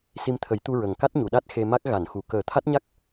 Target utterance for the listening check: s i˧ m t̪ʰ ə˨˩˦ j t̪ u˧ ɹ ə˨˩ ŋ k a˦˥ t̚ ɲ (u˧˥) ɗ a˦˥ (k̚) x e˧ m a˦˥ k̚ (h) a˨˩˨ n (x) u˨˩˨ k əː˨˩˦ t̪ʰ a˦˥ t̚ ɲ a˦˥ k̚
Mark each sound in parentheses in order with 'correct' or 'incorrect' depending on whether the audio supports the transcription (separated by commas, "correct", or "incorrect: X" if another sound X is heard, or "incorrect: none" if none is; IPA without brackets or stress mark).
incorrect: u˨˩˨, incorrect: t̚, incorrect: ɣ, correct